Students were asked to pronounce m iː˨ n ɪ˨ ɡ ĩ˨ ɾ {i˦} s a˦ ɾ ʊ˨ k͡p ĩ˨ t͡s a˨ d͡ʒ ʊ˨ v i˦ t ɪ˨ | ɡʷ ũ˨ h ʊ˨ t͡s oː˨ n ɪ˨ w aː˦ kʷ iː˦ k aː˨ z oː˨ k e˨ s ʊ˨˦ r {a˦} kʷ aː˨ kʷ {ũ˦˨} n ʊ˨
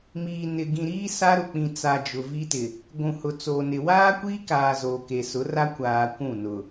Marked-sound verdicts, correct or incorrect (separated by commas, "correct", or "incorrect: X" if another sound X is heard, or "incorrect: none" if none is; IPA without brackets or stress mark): incorrect: iː˦, correct, correct